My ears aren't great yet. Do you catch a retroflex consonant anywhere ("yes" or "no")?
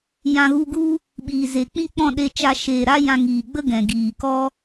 no